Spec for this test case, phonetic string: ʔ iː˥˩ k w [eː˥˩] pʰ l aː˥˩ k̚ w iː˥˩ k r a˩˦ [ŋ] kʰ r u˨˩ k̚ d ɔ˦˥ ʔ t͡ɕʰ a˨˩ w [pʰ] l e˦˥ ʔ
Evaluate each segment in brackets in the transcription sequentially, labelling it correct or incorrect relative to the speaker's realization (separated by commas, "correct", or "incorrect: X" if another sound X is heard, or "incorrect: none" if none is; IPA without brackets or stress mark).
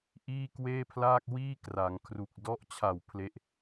correct, correct, correct